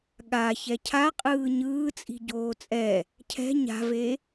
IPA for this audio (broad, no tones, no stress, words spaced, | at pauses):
ɠa çɛcʰaqʼɯː ɲɯːt͡sʼi̤ ɟoːt͡sʼɛ | cʰɛ̤ ɲa̤ve